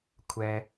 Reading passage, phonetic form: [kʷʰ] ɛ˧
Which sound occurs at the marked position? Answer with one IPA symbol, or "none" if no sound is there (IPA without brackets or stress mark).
kʷʰ